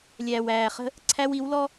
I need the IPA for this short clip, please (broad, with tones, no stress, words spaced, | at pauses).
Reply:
lʲæː˨wæː˨χə̤˦ | ǀʰæ˦wi˨˦w lɔ˦